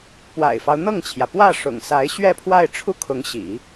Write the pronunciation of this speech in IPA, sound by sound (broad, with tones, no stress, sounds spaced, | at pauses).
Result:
p w a̰˨˩ ɪ̯ f ɑ˦ ʊ̯ n̪ ɤ˥˩ ŋ t͡ɕʰ j ä˩ p w ä˥˩ ʂ ʊ̰˨˩ ŋ s a˧˥ ɪ̯ ɕ ɥ ɛ˥˧ pʰ w a˥˧ ɪ̯ ʈ͡ʂʰ u˥˩ kʰ ʊ˧˥ ŋ ɕ ḭ˨˩˦